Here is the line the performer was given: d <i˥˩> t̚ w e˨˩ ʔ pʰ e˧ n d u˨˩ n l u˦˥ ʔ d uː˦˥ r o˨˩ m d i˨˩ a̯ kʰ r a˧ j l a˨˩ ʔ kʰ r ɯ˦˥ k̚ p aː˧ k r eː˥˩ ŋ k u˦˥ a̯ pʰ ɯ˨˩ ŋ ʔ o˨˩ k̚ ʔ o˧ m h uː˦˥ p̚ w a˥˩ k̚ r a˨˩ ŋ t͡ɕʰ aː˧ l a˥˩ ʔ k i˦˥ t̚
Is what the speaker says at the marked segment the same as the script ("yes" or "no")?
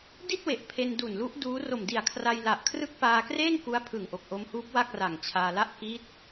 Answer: yes